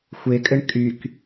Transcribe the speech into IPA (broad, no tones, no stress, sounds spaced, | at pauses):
xʷ e kʼ ɘ ɳ kʼ y k